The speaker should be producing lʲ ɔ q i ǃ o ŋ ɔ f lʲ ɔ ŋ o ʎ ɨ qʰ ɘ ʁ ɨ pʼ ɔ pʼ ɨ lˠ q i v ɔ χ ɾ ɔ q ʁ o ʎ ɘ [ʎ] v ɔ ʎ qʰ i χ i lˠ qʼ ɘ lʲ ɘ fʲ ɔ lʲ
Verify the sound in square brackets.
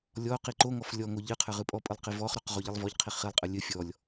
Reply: incorrect: lˠ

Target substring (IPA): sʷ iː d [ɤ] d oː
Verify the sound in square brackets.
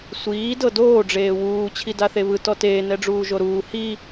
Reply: correct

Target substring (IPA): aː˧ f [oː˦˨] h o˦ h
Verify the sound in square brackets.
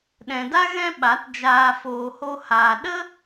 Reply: incorrect: oː˧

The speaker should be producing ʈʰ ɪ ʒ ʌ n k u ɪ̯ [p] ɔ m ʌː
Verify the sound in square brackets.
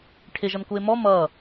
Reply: incorrect: m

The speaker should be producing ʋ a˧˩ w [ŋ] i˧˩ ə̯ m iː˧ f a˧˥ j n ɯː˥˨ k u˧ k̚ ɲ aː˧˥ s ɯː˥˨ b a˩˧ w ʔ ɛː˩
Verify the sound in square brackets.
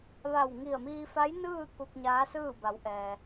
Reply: correct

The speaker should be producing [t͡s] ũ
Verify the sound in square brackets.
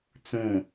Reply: correct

